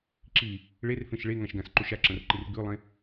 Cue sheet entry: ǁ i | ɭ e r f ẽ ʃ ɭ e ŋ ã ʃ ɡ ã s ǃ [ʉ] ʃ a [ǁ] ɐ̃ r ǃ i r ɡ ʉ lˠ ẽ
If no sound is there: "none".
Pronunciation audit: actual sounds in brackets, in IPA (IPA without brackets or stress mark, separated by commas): u, ǁ